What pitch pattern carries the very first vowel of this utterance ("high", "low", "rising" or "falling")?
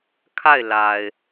falling